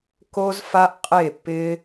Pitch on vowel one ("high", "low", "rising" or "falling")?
high